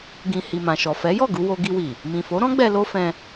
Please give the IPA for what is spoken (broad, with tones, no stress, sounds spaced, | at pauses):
ɡ ĩ˧ h i˨ m ã˨ ʃ ɔ˨ f ɛ˨˦ j ɔ˦˨ ɡ u˧ w o˧ ɡ i˧ w i˨ | m ĩ˨ f o˨˦ ɾ ɔ̃˦ ɡ͡b ɛ˧ l o˦ f ɛ̃˧